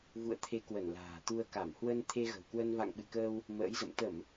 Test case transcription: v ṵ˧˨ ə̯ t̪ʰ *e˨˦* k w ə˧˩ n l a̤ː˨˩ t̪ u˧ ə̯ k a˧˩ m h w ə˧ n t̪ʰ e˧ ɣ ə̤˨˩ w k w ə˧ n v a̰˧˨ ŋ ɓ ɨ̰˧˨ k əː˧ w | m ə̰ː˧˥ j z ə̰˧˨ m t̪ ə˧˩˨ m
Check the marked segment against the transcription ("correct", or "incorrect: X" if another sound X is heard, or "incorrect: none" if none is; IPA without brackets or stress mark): correct